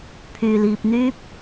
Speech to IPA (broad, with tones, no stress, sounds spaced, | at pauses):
pʰ yː˨ l iː˧ p̚ n̪ yː˥ p̚